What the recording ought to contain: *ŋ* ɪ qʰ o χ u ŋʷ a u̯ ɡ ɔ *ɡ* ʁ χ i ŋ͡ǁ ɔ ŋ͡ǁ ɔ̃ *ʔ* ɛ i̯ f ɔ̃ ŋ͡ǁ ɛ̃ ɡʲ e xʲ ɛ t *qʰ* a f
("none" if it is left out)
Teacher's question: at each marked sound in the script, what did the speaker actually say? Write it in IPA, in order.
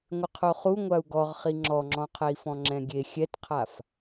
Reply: ŋʷ, none, qʰ, qʰ

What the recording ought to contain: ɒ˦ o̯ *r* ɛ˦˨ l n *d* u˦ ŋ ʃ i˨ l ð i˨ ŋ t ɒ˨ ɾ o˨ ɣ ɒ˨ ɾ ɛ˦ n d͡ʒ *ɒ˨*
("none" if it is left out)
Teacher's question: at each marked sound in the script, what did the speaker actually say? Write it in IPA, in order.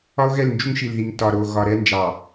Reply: ɣ, d͡ʒ, ɑ˨

